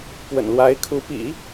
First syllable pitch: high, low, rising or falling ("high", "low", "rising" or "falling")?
low